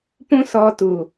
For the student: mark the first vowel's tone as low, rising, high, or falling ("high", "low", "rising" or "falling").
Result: high